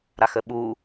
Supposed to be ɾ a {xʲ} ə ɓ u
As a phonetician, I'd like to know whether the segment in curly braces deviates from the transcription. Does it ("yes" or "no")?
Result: yes